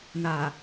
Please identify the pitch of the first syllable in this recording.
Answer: low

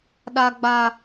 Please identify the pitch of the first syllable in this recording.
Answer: high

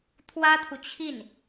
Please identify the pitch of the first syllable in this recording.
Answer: high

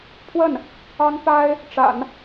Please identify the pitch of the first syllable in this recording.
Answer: falling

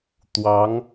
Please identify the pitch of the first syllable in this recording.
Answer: rising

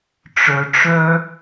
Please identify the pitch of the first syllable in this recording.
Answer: low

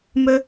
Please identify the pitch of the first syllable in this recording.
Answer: high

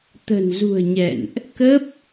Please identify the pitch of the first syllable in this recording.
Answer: low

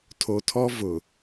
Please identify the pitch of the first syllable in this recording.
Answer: low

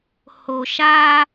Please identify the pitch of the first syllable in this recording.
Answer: low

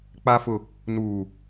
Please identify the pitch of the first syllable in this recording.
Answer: low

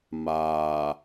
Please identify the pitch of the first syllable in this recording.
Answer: low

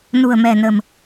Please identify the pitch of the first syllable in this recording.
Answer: low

